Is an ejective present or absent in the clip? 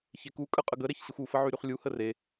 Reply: present